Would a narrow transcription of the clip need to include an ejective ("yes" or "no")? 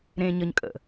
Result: yes